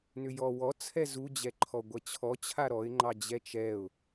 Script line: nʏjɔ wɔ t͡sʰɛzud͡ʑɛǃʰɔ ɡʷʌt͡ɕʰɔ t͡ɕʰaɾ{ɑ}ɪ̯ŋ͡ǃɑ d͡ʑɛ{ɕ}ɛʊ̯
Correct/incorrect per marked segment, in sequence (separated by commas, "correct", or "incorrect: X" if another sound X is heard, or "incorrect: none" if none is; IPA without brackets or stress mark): incorrect: ɔ, incorrect: t͡ʃ